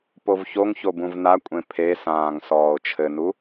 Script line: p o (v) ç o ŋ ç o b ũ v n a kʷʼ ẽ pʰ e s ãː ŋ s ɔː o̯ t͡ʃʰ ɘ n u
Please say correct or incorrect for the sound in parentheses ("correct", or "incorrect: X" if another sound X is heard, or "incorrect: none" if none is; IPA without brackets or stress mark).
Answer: correct